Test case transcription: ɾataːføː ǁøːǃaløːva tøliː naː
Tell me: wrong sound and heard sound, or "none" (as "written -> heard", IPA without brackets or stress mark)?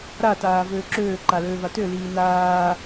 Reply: f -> v